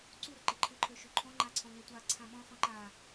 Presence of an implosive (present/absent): present